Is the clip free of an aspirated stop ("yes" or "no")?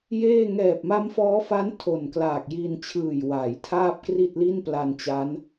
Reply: no